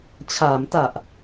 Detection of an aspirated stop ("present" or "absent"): present